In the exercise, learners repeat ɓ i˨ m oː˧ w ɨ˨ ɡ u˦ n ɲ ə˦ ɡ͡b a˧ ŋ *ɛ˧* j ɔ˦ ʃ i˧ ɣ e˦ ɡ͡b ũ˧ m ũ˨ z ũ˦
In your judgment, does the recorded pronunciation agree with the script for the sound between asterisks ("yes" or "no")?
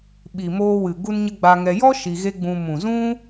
yes